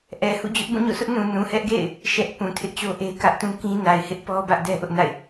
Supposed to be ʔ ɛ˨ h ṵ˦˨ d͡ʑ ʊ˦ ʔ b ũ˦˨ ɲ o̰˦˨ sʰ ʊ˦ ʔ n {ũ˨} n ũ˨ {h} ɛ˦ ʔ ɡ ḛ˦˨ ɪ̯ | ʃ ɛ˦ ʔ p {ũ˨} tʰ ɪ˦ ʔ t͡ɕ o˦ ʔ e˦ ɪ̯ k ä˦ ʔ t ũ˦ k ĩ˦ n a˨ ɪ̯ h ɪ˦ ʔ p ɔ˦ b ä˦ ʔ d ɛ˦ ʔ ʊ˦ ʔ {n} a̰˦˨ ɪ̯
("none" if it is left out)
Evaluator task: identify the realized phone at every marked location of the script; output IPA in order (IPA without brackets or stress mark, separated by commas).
ũ˨, h, ũ˨, n